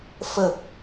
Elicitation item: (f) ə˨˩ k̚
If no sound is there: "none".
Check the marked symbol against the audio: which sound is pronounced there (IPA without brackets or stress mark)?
f